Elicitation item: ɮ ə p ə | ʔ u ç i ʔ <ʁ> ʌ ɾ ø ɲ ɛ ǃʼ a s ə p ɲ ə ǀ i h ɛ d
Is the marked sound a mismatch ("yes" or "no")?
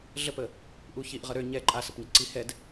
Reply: no